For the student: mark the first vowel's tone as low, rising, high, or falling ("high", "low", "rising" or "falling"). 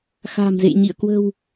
low